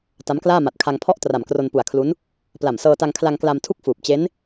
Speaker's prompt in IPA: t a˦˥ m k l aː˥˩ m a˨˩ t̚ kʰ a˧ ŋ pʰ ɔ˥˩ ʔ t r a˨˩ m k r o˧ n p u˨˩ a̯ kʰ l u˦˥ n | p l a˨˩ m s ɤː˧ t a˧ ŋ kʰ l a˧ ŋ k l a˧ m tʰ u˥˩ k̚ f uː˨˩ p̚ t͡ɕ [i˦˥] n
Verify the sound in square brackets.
incorrect: e˦˥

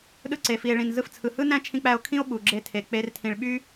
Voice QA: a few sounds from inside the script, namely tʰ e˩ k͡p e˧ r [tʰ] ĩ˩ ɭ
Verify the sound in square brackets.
correct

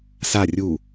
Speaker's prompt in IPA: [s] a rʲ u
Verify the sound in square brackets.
correct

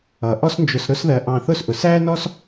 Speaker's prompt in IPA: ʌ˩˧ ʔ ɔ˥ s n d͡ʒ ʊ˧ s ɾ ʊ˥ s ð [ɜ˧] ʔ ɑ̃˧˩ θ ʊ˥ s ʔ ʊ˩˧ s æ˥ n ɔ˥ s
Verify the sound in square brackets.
correct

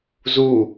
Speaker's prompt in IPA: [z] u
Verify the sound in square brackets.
correct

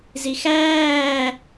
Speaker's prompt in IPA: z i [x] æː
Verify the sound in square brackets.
correct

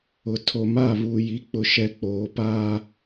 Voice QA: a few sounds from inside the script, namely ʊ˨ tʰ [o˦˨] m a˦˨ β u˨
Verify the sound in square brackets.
incorrect: o˨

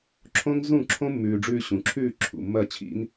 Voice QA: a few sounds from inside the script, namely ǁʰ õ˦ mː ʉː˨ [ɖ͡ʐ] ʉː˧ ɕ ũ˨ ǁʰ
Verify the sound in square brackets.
correct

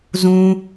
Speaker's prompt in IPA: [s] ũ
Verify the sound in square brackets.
incorrect: z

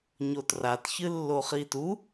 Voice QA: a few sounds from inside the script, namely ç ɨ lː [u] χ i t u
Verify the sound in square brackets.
incorrect: o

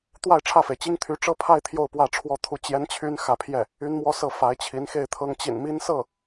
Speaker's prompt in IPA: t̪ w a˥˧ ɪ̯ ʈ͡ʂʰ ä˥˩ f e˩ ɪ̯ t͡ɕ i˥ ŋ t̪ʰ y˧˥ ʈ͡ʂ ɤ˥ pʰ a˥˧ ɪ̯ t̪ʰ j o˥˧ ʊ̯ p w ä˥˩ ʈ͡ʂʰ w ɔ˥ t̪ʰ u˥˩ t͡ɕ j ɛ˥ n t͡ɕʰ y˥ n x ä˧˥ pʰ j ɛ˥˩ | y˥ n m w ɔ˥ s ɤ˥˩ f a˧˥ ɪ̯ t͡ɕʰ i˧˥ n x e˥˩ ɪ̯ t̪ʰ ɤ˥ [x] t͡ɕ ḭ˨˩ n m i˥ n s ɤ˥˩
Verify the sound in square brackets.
incorrect: ŋ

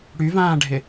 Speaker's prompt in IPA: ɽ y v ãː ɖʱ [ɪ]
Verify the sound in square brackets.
correct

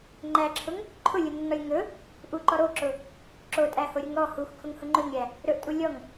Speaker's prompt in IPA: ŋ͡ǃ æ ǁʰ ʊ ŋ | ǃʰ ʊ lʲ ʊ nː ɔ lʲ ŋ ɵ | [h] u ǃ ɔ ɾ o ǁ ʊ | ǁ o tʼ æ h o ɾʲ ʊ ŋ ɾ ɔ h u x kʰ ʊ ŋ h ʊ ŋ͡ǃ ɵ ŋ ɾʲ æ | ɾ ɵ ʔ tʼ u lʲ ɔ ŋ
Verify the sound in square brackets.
incorrect: ʔ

